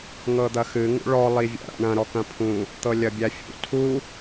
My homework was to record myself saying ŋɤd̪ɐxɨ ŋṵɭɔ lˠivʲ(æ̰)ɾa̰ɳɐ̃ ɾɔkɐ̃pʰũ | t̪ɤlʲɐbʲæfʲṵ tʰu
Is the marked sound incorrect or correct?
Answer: correct